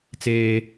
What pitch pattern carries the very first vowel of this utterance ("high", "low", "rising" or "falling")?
high